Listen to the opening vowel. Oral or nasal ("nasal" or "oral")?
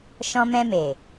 nasal